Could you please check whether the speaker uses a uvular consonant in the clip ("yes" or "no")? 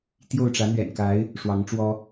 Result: no